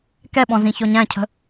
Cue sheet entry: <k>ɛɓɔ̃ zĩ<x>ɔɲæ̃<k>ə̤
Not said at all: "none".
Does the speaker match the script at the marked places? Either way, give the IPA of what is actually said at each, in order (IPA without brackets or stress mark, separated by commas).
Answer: k, ç, cʰ